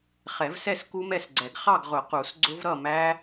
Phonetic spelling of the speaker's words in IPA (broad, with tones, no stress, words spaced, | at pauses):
χɛ˨˩˦vsɛ˥˨s ku˦˥mɛ˥˨sɡ͡ǀɛ˨˩˦ɡ χɑ˥˨ɡʁʊ˨˩˦ qu˨˩˦sɡ͡ǀʊ˦˥v ɾʌ˥˨mæ˦˥